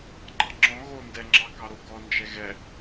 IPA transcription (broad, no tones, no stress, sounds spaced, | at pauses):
ǃ ɑ̃ ŋ͡ǁ ɔ̃ ɣ o n d ɛ ŋ͡ǁ ɑ k ɑ ɾ o ɡ ɔ n d͡ʒ ɛ ɣ ɛ